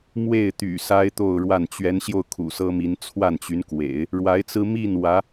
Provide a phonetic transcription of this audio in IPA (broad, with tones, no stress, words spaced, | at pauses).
mwe˥˩ɪ̯t̪y̰˨˩ sa˥ɪ̯t̪o˥˧ʊ̯ɻwa˥˩n t͡ɕɥɛ˧˥nɕjo˧ʊ̯ kʰṵ˨˩sɤ˥mi˧˥n t͡sʰwa˥˩nt͡ɕy˧˥nkwḛ˨˩˦ɪ̯ | ɻwa˧˥ɪ̯t͡sɹ̩˥ mi˥˩n wä˧˥